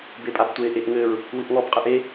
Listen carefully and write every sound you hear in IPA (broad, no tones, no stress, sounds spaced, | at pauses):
b e pʼ a b tʷ e ʔ e ʔ ŋ ɘ ɹ | w ɨ ʔ ŋ ɔ b qʼ ɨ ʔ e